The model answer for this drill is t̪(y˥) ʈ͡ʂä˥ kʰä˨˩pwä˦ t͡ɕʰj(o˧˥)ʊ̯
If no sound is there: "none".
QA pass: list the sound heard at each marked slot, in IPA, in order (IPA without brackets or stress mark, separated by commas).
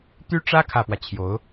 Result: y˥, o˧˥